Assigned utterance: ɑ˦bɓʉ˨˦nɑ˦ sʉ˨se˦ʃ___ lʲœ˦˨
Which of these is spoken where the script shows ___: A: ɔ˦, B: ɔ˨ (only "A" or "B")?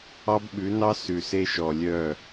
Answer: B